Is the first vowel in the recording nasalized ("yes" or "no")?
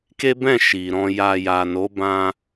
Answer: no